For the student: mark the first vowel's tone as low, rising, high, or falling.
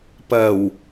low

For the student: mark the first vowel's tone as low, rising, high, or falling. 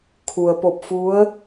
low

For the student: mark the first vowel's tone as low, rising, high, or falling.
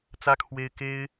high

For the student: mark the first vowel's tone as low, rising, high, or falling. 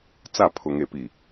falling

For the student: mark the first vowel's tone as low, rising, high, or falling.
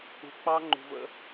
low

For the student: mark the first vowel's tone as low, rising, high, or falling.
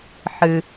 low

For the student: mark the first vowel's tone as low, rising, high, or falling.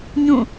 falling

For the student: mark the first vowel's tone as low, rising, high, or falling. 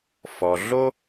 low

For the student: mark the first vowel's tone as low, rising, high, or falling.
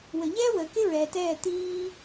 low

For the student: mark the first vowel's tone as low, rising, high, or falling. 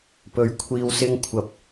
rising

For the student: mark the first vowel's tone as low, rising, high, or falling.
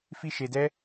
high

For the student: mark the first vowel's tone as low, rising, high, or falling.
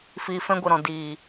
low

